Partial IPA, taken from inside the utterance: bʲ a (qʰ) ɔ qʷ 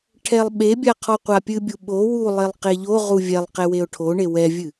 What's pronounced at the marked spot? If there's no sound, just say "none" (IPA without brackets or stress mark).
qʰ